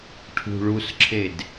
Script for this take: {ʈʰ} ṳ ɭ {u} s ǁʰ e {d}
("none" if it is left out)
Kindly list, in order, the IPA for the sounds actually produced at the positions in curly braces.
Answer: ʈʰ, u, d

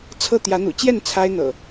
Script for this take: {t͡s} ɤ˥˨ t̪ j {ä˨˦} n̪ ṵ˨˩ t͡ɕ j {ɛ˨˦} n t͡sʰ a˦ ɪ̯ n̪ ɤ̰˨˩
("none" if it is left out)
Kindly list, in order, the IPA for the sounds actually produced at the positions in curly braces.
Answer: t͡sʰ, ä˨˦, ɛ˥˨

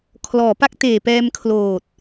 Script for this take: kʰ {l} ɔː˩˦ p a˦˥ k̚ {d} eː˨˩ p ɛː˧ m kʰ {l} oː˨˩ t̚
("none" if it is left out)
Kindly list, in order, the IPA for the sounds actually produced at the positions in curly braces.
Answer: l, t, l

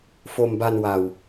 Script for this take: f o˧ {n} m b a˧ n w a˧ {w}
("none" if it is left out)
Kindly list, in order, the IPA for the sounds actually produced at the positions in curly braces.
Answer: none, w

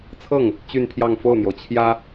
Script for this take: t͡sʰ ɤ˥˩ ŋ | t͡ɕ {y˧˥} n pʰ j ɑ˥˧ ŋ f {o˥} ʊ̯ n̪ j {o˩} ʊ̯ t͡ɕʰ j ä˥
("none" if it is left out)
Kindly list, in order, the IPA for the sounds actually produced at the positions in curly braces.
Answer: y˥˧, o˥˩, o˩

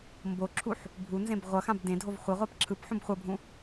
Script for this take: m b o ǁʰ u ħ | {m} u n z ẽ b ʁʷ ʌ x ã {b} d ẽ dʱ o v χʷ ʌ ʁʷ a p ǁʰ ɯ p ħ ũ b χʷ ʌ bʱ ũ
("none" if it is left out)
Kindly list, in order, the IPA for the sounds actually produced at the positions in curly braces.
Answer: bʱ, b

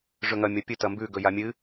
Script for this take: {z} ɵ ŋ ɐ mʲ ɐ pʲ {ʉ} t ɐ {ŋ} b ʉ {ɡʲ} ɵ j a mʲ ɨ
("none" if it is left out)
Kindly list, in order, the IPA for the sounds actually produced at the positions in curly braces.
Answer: ʐ, ɨ, m, ɡ

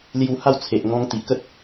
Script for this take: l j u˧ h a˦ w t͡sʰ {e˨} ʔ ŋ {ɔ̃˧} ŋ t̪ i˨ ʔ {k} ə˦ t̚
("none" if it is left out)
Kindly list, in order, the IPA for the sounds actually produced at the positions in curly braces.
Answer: e˨, ɔ̃˧, k

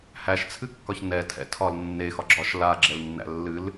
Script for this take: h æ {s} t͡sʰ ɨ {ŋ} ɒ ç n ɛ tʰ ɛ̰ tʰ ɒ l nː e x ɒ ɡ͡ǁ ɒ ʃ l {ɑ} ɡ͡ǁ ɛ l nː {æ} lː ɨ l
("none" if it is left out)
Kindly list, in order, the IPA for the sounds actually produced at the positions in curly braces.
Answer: ʃ, kː, a, æ̰

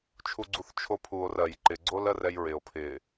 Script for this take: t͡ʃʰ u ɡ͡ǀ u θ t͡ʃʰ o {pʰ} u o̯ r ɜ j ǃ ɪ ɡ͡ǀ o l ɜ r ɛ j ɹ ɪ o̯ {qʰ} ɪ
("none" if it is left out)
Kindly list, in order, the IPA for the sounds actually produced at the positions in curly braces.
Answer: pʰ, pʰ

